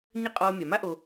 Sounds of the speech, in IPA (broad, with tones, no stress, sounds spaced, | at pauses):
ɲ ɘ˥ qʼ ɔː˦ mʲ a˩ m a˥ ʔ o˨